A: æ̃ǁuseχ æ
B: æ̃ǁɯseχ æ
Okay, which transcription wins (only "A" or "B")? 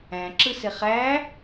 B